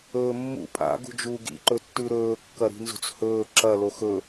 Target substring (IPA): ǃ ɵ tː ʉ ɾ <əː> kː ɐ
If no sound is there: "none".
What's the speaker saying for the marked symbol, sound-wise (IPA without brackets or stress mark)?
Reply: ɵː